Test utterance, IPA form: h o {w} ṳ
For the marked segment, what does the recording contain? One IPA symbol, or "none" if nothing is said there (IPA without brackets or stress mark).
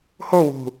w